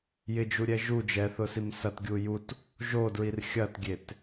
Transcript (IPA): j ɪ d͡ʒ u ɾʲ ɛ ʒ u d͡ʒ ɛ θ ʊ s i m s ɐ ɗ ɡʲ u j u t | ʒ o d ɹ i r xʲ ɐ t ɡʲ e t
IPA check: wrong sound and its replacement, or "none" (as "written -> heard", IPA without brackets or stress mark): ɗ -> t